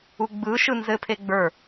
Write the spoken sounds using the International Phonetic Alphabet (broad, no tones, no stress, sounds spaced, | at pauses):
u ɡ͡b ɯ ʃ ɯ n z ɘ pʰ e ɡ͡b ə˞